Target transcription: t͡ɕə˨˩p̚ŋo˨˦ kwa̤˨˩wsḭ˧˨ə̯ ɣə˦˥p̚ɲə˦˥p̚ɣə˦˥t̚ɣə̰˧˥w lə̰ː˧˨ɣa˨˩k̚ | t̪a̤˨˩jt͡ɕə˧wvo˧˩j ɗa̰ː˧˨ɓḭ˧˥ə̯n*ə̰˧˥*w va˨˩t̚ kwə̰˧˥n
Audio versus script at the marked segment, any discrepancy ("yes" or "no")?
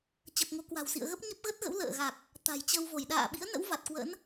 no